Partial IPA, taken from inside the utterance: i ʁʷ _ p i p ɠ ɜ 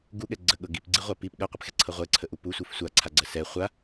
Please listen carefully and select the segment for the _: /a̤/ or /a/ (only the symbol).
a